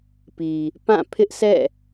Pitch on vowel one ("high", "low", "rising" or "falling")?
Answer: low